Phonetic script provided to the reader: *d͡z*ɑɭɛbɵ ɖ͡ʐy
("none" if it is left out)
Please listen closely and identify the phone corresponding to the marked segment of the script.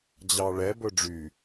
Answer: d͡ʑ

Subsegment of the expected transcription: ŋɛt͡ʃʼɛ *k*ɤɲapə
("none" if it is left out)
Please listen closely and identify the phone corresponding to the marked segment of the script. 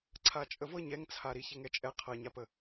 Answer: qʰ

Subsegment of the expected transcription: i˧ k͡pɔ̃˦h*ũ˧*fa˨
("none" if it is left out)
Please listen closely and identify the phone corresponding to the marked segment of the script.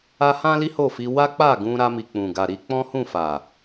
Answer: ũ˦˨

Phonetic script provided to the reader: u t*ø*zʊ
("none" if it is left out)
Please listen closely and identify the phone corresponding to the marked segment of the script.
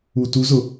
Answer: u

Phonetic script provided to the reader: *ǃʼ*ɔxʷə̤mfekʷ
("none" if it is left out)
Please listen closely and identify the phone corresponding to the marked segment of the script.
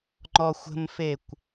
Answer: ŋ͡ǃ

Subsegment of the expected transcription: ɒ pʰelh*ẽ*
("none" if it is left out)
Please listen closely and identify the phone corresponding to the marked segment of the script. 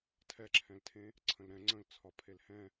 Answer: ɛ̃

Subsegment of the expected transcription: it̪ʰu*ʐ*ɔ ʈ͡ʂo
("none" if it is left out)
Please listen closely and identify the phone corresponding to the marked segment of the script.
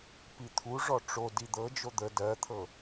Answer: ʐ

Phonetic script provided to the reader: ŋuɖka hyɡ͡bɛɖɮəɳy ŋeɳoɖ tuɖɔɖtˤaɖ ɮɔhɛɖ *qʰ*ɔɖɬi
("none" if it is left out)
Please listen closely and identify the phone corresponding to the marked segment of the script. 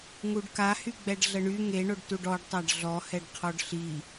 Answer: qʰ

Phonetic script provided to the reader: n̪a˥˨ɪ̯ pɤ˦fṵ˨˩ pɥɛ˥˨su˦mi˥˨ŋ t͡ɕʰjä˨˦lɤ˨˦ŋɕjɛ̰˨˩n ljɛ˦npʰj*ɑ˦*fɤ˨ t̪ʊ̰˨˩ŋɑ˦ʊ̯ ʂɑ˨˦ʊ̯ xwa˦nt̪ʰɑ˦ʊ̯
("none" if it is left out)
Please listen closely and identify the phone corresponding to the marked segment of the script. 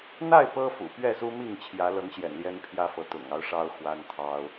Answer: ä˦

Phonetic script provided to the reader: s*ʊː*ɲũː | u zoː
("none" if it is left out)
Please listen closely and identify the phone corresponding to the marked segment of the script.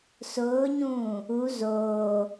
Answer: ʊː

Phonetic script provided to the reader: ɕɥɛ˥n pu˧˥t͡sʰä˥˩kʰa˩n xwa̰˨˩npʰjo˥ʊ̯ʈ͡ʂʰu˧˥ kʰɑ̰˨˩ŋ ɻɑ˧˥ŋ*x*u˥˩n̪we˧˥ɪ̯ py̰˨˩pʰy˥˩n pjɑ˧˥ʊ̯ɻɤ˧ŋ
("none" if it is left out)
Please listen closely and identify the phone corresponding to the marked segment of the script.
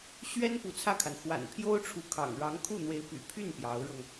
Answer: kʰ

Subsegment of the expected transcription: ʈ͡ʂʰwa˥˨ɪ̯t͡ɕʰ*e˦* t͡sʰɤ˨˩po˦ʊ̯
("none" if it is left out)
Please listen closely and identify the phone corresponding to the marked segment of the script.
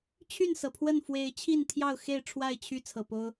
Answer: y˦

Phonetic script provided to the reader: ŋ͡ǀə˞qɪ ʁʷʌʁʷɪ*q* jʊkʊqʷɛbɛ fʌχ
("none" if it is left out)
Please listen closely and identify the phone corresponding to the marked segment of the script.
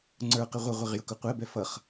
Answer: ʁ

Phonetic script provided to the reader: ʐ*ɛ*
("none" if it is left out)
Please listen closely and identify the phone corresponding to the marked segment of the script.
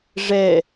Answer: ɛ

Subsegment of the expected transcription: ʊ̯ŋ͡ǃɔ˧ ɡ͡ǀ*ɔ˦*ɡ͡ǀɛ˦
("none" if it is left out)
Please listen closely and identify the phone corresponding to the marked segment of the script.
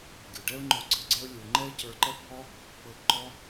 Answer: ɤ˦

